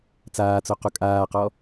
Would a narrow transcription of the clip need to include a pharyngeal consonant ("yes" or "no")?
no